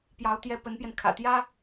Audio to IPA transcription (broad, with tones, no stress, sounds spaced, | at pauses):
p j ɑ˧˥ ʊ̯ t̪ j ɛ˥˩ p ə˧˥ n p j ɛ˧ n kʰ ä̰˨˩ t̪ j ä˥